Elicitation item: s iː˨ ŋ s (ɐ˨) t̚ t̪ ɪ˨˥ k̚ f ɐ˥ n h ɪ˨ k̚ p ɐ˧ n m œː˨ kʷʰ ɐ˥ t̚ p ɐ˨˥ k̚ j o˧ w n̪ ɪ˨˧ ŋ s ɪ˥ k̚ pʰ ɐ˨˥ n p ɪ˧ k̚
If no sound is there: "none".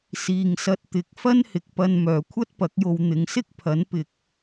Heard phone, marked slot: ɐ˧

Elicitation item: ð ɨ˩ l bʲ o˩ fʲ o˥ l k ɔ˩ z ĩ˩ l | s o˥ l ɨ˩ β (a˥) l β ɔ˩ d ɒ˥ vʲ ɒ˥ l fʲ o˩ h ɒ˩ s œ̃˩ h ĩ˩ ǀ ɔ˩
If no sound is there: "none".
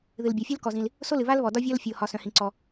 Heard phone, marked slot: a˥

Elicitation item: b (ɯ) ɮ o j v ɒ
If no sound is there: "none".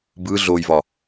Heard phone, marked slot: ɯ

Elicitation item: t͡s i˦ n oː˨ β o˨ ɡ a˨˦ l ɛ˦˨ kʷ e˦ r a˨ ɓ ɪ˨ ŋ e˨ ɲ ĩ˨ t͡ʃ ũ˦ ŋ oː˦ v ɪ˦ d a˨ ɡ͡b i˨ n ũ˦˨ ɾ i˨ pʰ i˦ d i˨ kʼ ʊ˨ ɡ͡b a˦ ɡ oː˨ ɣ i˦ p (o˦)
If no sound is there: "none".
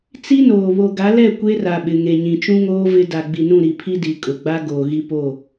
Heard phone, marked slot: o˦˨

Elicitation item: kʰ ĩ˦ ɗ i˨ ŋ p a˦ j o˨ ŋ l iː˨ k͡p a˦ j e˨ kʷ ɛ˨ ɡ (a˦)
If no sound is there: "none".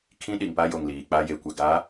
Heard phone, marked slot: a˨˦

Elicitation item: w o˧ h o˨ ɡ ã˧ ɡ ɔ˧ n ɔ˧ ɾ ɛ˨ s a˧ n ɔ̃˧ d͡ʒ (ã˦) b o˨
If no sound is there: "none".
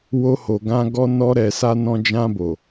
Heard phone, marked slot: ã˧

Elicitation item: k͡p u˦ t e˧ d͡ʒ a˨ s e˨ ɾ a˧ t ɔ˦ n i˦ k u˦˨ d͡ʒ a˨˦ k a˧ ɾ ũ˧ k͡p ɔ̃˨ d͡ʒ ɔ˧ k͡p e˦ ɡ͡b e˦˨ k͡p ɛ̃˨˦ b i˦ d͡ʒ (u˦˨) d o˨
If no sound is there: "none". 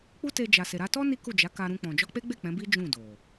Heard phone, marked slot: ũ˦˨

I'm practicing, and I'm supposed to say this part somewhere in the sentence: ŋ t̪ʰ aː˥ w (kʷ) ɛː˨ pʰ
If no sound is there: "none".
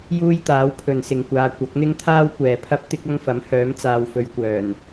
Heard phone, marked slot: kʷ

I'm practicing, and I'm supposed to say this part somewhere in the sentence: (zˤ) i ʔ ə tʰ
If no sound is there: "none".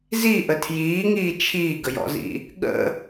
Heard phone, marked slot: z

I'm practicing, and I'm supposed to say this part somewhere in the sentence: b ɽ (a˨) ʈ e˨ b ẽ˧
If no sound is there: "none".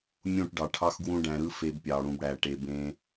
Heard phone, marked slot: æ˨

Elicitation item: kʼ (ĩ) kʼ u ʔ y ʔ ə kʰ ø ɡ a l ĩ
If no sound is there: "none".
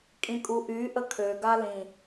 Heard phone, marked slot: ĩ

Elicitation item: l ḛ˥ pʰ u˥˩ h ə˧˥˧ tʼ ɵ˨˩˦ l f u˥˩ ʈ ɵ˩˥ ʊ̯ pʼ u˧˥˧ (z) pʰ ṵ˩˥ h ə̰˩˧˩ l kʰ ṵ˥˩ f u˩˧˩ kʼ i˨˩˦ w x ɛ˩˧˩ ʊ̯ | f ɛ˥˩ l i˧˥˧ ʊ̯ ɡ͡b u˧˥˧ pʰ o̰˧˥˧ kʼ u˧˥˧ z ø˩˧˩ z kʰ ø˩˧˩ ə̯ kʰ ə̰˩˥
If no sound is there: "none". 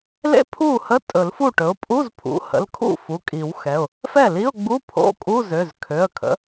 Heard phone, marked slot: z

